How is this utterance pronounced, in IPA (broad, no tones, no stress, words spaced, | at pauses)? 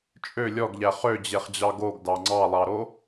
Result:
t͡ʃʼø lʲɔɡʎæ χød͡ʑeχd͡ʑɑ ɡoɡdɑ ŋ͡ǀɑlˠɑɾo